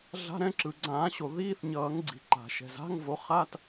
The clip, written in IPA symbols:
ɮa̤˧˥˧ɾɛ̃˧˥˧ ǁɯ˩ ɡ͡ǀãː˨˩˦ɕo˩ ðiː˧˥˧θɲʌː˨˩˦ŋɡ͡ǀi̤˩ ǃa̤˩ʃɛ̤˩z a̤˧˥˧ŋvo˨˩˦χa˧˥˧t

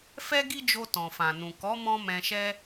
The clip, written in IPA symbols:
fɛ˦ɡi˦d͡ʒo˧ tɔ̃˨fã˨nũ˨ kɔ˨˦mɔ̃˧ mɛ̃˧ʃɛ˦

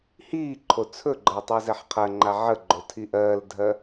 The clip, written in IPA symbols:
hiːǃʰo t͡sʰɵɡ͡ǃɜ tˤɜzɛħqʰɜŋ͡ǃa ʕəɡ͡ǃo tʰiʔɜːldʱɜ

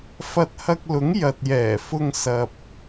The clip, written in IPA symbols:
fɐ˧t̚hɐ˧k̚lʊ˨˥ŋ jɐ˨t̚jɛː˨˩ fʊ˧ŋ sɐ˨p̚

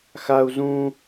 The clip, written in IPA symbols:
xau̯ zũ

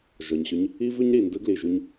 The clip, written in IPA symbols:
ʒɔ˩ɲɕʏ˧ɲ | i˥vʏ˥ɲ ɾi˩ndɯ˥ ɡli˩ʒu˧ɲ

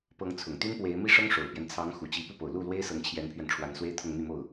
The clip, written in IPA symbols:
pɤ˧˥ŋt͡sʰʊ˨˩ŋt̪y˥n pwe˧˥ɪ̯ mi˥˩ʂɤ˥ŋʂo˨˩ʊ̯pjɛ˦n t͡sʰɑ˧˥ŋ xu˨˩ t͡ɕi˧˥ pu˥˩po˨˩ʊ̯ lu˥˩lwe˥ɪ̯ sɤ˧˥ŋt͡ɕʰjɛ˧˥npʰɥɛ˧n ʈ͡ʂʰwa˧˥nswe˥ɪ̯t̪ʰʊ˥˧ŋn̪y˥˧ mo˥˩ʊ̯

